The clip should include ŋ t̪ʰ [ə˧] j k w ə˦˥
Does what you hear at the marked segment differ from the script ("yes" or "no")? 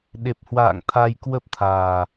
yes